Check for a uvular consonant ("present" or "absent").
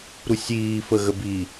absent